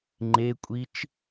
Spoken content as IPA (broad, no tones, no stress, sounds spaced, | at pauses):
ŋ͡ǃ e kʷʼ i t͡ʃ